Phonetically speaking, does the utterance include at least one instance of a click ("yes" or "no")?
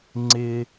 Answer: yes